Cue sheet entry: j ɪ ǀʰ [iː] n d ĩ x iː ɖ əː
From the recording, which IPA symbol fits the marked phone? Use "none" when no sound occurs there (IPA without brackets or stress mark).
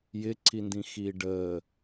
i